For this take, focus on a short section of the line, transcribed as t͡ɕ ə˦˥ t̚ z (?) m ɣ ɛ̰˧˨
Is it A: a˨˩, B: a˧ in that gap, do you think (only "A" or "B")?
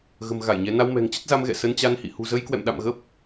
B